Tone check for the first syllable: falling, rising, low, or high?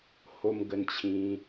high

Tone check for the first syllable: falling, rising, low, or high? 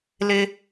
high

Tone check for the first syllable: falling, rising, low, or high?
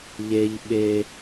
high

